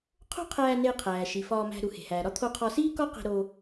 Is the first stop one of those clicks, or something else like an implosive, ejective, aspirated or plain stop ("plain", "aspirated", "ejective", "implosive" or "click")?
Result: aspirated